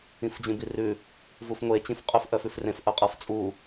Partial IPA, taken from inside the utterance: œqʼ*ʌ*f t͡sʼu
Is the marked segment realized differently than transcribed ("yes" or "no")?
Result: no